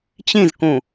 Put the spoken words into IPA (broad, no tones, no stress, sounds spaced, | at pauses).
t͡ɕ ĩ z k ũ